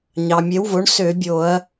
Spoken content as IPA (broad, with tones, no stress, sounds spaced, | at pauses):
ɲ ɑ˩ mʲ e˩˥ w v o˩˥ ɳ s ø˧˩˧ bʲ o˧˩˧ ɐ̯